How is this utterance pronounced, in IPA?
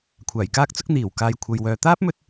kʷʰaː˨˩jkaː˥k̚t͡sʊ˥k̚ n̪iː˨˩w kaː˨jkʷʰɐ˨j wœː˨t̪aː˥p̚mɵ˧t̚

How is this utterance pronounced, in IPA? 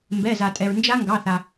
mbɛ˩˧˩za˩tʼɛ˩ɹ nd͡ʒa˦˥ŋɡɑ˩˧˩θa˩

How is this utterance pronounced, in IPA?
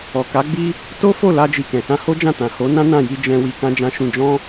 ɔ˨ka˨˦ɡ͡bi˦ | to˦fo˦˨ la˧d͡ʒi˨ kɛ̃˨sã˧ho˦d͡ʒã˦˨ tã˨ho˨˦nã˦ nã˦˨ji˧ d͡ʒɛ̃˧ wi˧kã˦d͡ʒã˦ʃũ˦˨ d͡ʒɔ̃˧

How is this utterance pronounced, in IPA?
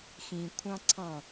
xĩkʷʰɑ̃ ǀʰɑ̃

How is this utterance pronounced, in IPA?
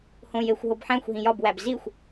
hõjexʷ ɦobħæ̃xʷɦĩ jɒbwæb zixʷ

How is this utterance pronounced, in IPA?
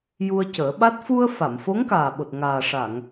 ju˧ə̯cəː˨˩˦ɓa˦˥t̚ fu˧ə̯ fa˨˩˨mfo˧˥ŋkaː˨˩ɓo˨˩t̚ ŋaː˨˩ʂa˨˩˨ŋ

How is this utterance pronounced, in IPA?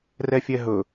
rɛfʲɛɦɵ

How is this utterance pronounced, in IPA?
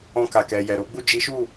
ɔ̃˧ka˨ kɛ˨ jɛ˨ ɾo˨˦ɡ͡bu˦˨ d͡ʒi˨˦ʃu˦˨

